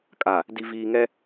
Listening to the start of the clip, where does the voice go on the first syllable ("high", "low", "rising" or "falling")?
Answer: low